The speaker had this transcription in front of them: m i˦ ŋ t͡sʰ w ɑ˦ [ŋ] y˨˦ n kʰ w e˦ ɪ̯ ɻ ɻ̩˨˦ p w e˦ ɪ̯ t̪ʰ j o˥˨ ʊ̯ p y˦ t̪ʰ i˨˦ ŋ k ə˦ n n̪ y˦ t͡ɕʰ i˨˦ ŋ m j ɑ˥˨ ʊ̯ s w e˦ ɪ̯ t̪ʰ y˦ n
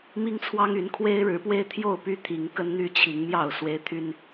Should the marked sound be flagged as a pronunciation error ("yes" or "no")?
no